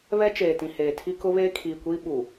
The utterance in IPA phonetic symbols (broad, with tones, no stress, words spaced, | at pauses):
βɛ˦t͡ʃeː˨tĩ˨heː˨ tʰi˦kʊ˦βeː˦ kʰiː˨kʷiː˦ ɓu˨